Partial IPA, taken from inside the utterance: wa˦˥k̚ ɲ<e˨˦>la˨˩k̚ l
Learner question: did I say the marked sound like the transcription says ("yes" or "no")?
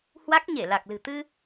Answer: no